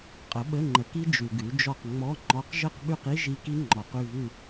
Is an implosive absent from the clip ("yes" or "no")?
no